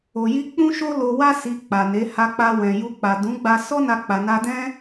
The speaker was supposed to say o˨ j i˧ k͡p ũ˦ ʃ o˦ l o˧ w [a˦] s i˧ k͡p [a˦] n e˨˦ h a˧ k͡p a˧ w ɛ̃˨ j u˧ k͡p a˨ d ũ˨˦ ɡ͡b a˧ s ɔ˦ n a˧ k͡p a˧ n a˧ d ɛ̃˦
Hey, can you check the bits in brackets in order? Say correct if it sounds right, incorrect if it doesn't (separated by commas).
correct, incorrect